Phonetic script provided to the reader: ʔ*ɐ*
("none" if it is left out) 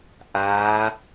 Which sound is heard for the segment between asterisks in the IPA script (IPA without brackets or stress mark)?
a